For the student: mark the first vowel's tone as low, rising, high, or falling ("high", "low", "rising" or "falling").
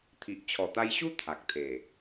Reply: low